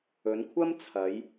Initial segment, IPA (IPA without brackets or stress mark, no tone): ɵ